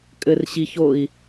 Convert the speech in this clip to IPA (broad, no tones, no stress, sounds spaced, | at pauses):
kʼ ɘ r ɕ i ç o i̯